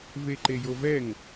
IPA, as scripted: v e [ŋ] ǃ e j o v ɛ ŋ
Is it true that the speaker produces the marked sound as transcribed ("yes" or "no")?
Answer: no